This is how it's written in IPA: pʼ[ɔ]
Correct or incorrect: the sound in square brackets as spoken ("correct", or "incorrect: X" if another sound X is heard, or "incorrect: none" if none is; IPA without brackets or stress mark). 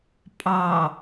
incorrect: ɑ